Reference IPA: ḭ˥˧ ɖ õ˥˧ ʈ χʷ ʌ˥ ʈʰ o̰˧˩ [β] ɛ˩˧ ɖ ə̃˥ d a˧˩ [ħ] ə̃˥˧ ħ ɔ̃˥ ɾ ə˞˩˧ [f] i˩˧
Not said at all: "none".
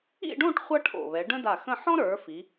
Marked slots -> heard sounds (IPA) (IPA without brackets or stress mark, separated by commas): β, x, f